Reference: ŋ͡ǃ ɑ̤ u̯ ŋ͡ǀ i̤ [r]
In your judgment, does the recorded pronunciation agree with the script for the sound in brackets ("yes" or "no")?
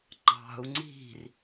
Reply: yes